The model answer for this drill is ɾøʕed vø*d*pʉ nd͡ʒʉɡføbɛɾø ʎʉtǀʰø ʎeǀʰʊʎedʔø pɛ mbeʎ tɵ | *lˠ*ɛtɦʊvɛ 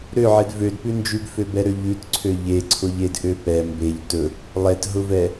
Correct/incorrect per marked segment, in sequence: correct, correct

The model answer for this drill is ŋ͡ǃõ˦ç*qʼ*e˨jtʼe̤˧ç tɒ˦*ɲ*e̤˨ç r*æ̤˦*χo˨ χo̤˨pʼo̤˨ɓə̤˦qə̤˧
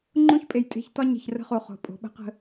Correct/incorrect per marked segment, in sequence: incorrect, correct, incorrect

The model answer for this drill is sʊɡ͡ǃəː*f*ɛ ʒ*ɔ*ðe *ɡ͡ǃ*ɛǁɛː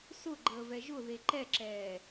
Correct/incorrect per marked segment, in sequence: incorrect, incorrect, incorrect

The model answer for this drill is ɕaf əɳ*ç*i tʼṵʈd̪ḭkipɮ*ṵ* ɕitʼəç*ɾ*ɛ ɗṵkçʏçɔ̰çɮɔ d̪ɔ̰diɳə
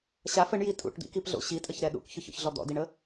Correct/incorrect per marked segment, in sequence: incorrect, incorrect, correct

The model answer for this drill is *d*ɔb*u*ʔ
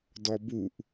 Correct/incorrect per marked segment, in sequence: correct, correct

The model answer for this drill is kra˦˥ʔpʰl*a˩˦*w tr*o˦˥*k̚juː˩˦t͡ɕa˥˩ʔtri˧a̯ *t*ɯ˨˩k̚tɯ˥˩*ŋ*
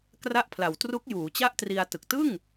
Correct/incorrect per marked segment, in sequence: correct, incorrect, correct, correct

